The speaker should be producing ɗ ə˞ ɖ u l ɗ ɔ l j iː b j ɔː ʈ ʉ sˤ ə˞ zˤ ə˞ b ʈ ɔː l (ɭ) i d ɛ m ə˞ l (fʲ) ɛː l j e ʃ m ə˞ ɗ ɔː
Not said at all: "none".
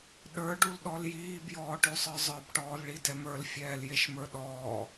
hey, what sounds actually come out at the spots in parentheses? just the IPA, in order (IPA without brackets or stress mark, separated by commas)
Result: ɭ, fʲ